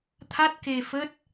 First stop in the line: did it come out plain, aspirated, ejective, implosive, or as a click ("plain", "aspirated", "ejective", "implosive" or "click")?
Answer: aspirated